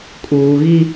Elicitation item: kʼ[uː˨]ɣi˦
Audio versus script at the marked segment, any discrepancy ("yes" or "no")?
no